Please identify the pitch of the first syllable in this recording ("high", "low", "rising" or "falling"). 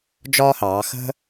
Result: high